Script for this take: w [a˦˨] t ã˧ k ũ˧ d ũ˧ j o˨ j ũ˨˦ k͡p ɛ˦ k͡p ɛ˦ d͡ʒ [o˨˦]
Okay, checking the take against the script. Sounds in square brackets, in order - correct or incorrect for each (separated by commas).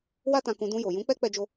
incorrect, incorrect